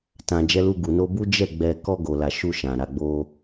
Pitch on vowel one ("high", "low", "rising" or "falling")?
low